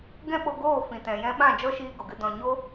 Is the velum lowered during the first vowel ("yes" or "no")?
yes